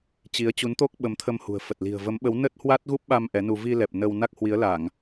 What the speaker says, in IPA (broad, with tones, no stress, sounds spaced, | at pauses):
t͡ɕ i˨˦ ə̯ t͡ɕ u˨˦ n t̪ o˦˥ k̚ ɓ ə˨˦ m t̪ʰ ə˧ m h ṳ˨˩ ə̯ f ə˨˩ t̚ l i̤˨˩ ə̯ v ə˨˦ m ɓ ə˨˦ w n ə˦˥ t̚ h w a˦˥ t̚ ɣ u˦˥ p̚ ɓ a˧ m ʔ ɛ˨˦ n u˧ v i˧ l ɛ˨˩ p̚ n ə˧ w n a˦˥ k̚ h w i˨˦ ə̯ l a˧˩˨ ŋ